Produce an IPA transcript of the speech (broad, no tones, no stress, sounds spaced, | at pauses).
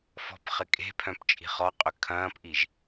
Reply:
f ɔ̤ p χ ɪ kʼ e̤ pʰ œ̃ p t͡ʃʼ i̤ χ ɔ qʼ ʏ kʰ ɐ̃ː p ʔ i ʒ